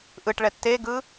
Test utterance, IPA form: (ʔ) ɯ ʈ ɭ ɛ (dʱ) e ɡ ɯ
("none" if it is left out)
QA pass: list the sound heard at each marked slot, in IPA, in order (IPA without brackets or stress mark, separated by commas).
ʔ, tː